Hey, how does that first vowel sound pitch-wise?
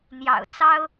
low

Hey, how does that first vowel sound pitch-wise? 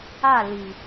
falling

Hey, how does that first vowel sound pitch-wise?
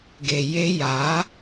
low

